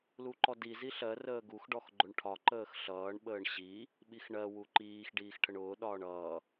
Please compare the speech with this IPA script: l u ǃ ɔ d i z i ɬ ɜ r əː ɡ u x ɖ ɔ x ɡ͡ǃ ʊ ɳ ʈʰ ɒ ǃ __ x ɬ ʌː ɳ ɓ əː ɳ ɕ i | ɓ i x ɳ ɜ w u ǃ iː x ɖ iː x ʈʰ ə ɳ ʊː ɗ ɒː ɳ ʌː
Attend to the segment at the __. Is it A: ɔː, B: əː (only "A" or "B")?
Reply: B